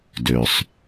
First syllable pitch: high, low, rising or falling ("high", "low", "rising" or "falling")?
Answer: low